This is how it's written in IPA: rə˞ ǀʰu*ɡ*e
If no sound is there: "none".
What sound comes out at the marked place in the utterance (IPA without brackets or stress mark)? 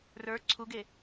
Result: ɡ